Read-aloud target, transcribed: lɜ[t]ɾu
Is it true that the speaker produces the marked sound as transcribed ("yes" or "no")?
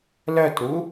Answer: yes